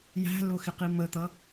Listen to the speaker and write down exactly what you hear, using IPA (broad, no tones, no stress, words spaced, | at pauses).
jæ̤lʊxɪqi mət̪ʌ